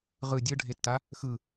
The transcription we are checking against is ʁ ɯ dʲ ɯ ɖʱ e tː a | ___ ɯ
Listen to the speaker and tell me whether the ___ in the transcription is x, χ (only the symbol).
x